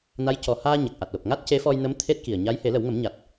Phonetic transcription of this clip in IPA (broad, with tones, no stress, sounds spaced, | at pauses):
n a˧˥ j c ɔ˨˩ h aː˧ ɲ a˨˩ k̚ ʔ a˨˩ t̚ l o˨˩ p̚ ŋ a˦˥ t̚ c e˧˥ f ɔ˧ j n ə˧˥ m t̪ʰ e˦˥ t̚ k i˨˩ ə̯ ɲ a˧˥ j h e˨˩˦ l ə˨˩˦ w ŋ ə˨˩˦ m ɲ a˨˩ t̚